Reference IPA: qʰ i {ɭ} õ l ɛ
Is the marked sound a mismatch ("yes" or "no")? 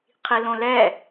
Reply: yes